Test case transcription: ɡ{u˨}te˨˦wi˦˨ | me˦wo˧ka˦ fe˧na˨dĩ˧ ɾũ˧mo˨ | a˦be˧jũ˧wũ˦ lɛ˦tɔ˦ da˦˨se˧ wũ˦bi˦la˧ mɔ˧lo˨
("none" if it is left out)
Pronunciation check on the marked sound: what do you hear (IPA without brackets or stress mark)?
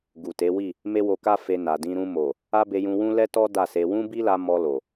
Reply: u˨